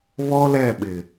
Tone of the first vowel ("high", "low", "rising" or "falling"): high